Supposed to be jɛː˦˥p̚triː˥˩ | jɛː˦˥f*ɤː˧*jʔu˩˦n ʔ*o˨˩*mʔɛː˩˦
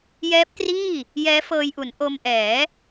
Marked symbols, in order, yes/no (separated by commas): yes, no